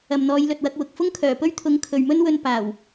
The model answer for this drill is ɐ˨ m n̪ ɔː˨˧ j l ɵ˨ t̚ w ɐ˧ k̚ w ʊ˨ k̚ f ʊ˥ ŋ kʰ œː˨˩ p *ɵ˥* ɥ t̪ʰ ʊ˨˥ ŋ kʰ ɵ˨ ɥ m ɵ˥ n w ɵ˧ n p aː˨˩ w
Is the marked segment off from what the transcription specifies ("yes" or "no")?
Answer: no